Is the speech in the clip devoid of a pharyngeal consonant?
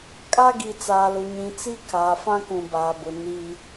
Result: yes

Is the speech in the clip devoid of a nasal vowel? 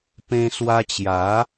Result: no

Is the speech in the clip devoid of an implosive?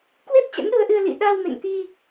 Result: no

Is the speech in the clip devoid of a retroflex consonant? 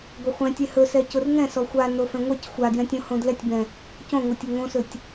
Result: yes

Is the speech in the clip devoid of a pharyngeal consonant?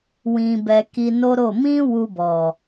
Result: yes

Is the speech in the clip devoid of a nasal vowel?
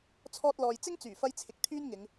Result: yes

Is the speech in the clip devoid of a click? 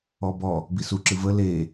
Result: no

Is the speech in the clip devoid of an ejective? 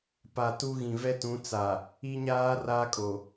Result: no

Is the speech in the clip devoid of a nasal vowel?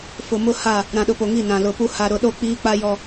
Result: no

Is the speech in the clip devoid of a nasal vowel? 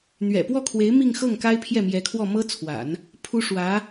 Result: yes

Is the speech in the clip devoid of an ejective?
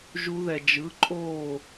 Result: no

